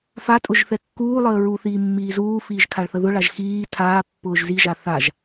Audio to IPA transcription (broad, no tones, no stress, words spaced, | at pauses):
fatʼʊʒ θɛkːuːlˠəː ɹuθiː mːiːzuːfiːʒ kʰaɭθəðʊɭaʒ xiː tʰaː pːʊːʒziʒa θaʒ